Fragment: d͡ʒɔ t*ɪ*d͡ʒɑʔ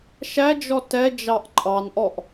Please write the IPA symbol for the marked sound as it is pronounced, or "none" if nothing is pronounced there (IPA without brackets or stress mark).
ɛ